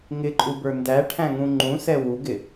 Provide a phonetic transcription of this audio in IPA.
ŋ ɪ ǃʼ u b ə˞ n d æ ʈʰ æ̃ ŋ ũ ŋ͡ǃ ũ s ɛ w u ɡ ɪ

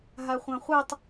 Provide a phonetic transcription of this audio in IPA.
ɦ a χʷ ɑ̃ χʷ ɛ tˤ

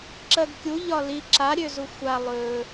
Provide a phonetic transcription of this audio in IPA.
ǁ ɜ ɡ kʲ u ʎ ɒ l i ǁ a ɾʲ ø z u xʷ a lˠ ɵ

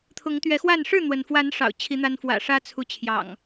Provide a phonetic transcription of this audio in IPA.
t̪ʰ ʊ˨˦ ŋ t̪ ɥ ɛ˨˦ x w a˥˨ n ʂ ɻ̩˥˨ n̪ w ə˩ n f w a˨˦ n ʂ ɑ̰˨˩ ʊ̯ t͡ɕʰ i˨˦ n̪ a˦ n f w ä̰˨˩ ʂ ä˦ t͡sʰ u˨˦ t͡ɕʰ j ɑ̰˨˩ ŋ

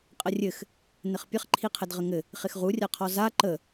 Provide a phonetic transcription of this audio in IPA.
qʼ ə rʲ ɘ x | n ɘ χ pʲ ə χ ǃʰ i qʰ ɘ d ʁ ə ŋ ɘ | χ ɪ x ʁ u rʲ a qʰ ɔ z a ǃ ə

